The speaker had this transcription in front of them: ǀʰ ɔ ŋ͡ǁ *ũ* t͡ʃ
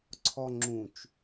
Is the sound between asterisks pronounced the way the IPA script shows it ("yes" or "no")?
yes